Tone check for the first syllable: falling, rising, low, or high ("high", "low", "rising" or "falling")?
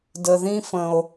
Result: low